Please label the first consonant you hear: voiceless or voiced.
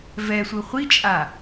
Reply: voiced